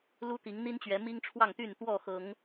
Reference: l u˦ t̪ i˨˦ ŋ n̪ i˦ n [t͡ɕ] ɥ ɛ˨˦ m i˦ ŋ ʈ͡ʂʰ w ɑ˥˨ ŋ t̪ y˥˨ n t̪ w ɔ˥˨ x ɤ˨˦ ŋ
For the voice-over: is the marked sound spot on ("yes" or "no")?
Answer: yes